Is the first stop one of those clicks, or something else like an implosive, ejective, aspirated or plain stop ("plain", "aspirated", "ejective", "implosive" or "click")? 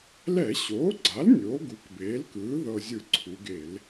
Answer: click